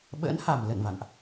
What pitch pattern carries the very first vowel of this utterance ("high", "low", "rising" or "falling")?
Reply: rising